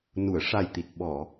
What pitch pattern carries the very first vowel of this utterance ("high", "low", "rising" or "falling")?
low